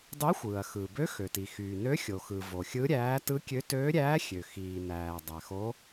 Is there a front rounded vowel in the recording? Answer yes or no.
yes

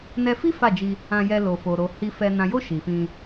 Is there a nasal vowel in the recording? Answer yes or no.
yes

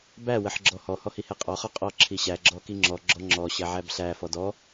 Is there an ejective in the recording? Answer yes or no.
yes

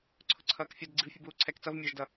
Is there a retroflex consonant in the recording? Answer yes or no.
no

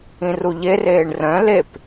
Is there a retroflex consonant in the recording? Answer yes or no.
yes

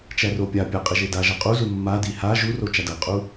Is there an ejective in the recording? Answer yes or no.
yes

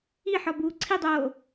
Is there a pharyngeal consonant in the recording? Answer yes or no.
yes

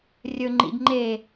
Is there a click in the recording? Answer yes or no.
yes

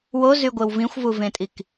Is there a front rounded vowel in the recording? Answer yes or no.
yes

